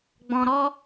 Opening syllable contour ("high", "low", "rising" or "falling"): low